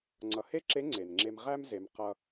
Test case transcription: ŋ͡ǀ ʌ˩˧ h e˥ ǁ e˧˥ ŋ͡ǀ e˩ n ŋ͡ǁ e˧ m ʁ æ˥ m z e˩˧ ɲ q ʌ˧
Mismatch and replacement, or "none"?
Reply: ɲ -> m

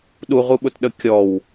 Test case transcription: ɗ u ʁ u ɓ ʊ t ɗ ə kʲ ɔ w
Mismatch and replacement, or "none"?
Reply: none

